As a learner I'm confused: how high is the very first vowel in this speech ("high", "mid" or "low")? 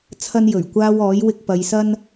low